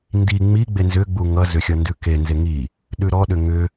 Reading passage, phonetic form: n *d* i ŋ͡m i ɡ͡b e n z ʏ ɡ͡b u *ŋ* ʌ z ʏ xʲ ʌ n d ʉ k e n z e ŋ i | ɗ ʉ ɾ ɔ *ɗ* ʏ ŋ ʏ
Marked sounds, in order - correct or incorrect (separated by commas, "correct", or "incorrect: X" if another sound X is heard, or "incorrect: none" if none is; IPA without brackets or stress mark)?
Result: correct, correct, correct